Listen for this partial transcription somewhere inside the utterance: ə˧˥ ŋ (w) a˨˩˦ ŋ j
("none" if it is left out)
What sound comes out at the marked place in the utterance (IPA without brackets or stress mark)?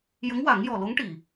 w